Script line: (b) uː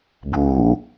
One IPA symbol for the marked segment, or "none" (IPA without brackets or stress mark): b